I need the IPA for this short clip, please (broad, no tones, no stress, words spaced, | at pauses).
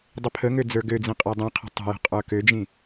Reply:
dˤəpʰəŋø d͡zə˞ɡød͡zĩ qʼedˤĩqʰə̤ tˤə̤jə̤ qʼə˞kød͡ʒĩ